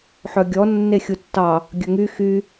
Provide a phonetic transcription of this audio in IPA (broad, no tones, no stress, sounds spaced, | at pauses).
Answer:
ħ œ ɡʲ ɔ nː e xʲ u tː ɑ | ɡʲ ɵ ŋ y x y